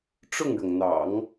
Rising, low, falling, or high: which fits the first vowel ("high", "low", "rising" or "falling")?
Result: falling